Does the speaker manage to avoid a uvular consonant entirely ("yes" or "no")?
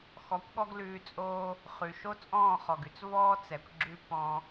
no